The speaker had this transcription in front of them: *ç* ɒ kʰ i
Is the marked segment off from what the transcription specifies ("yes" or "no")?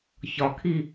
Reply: no